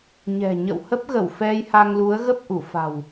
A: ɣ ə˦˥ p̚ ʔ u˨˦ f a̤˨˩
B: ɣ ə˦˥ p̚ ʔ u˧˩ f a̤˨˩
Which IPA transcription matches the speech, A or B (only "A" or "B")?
B